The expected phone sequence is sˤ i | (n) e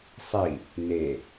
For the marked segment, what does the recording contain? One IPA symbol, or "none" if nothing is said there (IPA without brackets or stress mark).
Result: n